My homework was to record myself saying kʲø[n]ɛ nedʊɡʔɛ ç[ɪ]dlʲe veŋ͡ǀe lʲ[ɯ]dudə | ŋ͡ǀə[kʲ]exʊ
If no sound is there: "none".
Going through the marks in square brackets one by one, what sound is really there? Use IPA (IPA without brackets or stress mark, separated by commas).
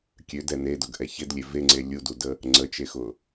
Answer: d, ɪ, u, t͡ʃ